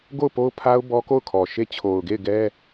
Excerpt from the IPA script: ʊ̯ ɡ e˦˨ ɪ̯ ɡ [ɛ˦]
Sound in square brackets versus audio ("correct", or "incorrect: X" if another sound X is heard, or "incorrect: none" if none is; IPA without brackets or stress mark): correct